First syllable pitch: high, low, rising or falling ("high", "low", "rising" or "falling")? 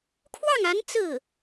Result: falling